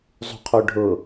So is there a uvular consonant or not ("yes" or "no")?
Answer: yes